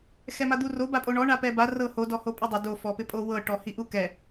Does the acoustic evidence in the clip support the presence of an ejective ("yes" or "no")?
yes